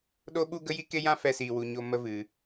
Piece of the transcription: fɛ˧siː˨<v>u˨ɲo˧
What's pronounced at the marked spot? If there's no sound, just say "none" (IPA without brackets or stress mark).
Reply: w